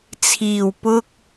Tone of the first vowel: low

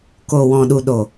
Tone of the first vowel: low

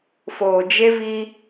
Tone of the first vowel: low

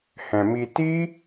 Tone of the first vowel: low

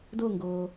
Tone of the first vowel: falling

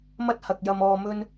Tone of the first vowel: high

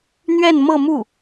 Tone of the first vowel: falling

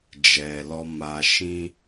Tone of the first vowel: low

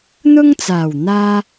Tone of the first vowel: high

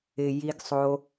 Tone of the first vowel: low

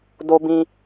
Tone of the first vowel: high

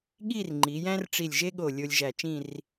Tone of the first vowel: falling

